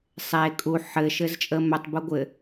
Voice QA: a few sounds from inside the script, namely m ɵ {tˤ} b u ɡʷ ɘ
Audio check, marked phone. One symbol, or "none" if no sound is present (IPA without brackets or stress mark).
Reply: tˤ